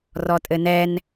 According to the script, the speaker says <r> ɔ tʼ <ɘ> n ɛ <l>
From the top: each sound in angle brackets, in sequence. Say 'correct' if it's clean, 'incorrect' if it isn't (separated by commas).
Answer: correct, correct, incorrect